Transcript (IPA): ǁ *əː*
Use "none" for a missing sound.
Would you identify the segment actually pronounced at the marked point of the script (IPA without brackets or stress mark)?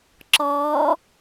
ɔː